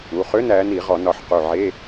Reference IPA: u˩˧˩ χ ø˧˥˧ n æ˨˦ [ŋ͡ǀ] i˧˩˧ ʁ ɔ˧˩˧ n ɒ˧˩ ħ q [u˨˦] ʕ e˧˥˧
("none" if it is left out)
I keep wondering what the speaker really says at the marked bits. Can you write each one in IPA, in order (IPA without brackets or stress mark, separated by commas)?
n, u˧˩